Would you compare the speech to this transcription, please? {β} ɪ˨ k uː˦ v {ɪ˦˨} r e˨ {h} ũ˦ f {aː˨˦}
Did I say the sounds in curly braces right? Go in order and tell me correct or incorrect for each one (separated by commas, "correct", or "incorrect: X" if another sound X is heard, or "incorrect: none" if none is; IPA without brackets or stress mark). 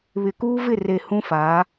correct, correct, correct, correct